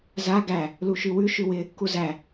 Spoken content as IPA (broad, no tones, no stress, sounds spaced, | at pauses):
z a ɡ æ | l u ʃ ʉ w ʉ ʃ ʉ w ɪ | k u z æ